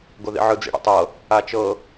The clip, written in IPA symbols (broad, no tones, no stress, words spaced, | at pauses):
ɡoðḭʕɯ d͡zḭɽṵtˤɤ | at͡ʃɤ